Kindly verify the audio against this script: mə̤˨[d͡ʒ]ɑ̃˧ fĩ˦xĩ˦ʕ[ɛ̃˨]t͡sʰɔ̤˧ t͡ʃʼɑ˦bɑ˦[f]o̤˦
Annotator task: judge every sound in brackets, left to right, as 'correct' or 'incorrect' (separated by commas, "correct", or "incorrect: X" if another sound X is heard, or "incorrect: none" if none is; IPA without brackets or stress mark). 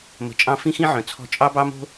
incorrect: t͡ʃʼ, incorrect: œ̃˨, incorrect: m